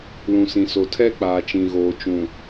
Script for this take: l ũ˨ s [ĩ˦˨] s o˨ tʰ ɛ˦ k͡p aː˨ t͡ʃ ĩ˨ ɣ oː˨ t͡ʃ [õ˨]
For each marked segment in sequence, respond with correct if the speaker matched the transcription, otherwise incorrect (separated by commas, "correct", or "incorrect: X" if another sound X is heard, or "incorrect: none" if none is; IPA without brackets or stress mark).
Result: incorrect: ĩ˨, incorrect: ũ˨